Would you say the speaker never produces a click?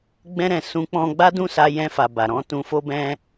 yes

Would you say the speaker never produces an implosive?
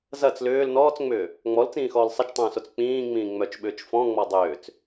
no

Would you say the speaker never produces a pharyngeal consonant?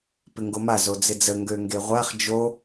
yes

